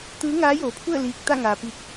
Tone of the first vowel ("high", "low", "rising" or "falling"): rising